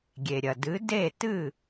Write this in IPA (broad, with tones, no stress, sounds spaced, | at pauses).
ɡʲ e˩ ɾʲ ɐ˩ d ɨ˩˥ d e˥˩ t ɨ˥˩